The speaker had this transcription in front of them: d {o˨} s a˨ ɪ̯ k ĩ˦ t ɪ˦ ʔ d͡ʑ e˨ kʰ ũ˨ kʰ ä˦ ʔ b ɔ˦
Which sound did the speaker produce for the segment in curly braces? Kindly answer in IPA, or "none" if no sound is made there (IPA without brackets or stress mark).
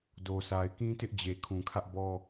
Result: o˨